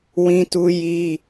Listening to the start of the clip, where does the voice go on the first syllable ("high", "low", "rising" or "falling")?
high